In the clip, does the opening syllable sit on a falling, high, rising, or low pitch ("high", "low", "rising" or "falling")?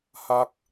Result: low